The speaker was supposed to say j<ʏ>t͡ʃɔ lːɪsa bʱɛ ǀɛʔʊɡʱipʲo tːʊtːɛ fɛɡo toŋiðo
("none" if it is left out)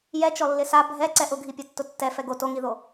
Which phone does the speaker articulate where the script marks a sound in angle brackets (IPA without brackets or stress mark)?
ɛ